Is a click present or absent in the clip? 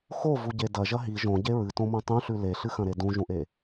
absent